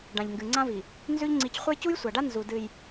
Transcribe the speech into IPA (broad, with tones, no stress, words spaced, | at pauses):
ɖã˨ʎŋɡɨ˨ ŋ͡ǀã˦vi˨ | nzʉ˦ʎŋ͡ǀi˨˦c χʷɐ˦jcu˦jsʷa˨ɖa˦ nzu˨dɨ˨j